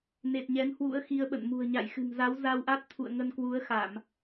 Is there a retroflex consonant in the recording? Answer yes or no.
no